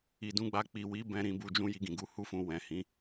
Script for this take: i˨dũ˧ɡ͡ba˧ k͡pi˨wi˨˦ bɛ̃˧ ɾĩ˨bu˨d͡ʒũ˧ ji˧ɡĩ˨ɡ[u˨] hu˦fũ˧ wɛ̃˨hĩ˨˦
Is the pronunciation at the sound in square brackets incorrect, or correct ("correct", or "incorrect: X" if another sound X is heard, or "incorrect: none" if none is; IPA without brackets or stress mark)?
incorrect: u˨˦